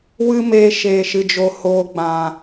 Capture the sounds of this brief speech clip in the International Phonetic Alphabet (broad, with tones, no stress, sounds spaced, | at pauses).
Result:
w ɨ˦ m eː˧ ʃ eː˨ ʃ ɨ˨ d͡ʒ o˨ h oː˨ ɡ͡b ã˨